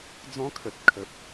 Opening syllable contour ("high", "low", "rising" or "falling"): high